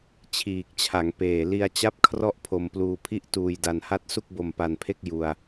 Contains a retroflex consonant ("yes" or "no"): no